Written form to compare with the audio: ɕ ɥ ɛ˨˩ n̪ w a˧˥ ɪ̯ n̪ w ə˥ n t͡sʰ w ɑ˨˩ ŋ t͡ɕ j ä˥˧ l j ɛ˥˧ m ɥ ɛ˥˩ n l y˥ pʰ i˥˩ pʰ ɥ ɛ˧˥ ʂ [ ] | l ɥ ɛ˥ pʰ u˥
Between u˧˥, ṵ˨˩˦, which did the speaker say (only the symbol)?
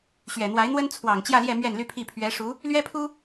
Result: u˧˥